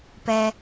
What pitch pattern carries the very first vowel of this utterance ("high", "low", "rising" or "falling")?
low